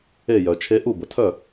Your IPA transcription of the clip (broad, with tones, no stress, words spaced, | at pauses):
e˥˩jœ˩˧t͡ʃʰe˦˥ ʔu˥˩bə˩tʰœ˥˩